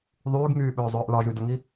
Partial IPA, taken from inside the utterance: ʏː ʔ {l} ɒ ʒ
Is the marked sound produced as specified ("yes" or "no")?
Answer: yes